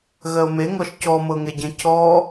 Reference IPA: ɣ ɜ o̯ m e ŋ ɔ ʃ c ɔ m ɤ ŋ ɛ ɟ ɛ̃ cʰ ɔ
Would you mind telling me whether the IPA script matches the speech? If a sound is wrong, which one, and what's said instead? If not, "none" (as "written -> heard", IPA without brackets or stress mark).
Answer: none